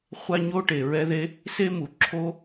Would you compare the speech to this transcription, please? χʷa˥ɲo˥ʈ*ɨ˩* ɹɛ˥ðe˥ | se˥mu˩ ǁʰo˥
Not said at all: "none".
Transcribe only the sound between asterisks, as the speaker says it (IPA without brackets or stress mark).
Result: e˩